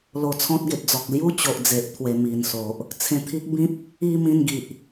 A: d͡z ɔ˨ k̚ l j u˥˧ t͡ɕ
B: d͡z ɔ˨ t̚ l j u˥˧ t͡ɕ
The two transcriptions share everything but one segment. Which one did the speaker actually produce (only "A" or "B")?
A